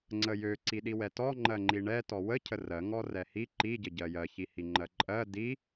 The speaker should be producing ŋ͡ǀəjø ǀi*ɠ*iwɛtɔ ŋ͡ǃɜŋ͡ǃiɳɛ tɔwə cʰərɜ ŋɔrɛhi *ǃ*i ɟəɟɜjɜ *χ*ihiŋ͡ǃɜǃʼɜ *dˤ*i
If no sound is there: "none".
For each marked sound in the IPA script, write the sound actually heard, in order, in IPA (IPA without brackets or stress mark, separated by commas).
ɗ, ǃ, ç, d